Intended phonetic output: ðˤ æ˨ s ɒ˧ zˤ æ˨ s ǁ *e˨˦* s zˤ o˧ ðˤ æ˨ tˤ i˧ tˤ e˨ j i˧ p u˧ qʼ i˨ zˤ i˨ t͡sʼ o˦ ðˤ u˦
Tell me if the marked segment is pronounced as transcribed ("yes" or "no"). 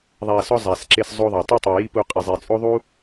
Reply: no